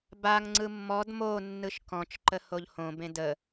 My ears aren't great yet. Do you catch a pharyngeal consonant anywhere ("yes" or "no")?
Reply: no